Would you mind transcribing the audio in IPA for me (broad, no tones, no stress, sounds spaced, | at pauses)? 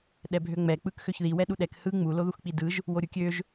ɗ ɛ bʱ ø ŋ͡m ɛ k͡p ɯ k x ø ç ð i w ɛ ɗ u ɗ ɛ k h ɯ ŋ͡m u l o ð u x k͡p i d ɯ ʒ | w o ɾʲ u kʲ ø ʒ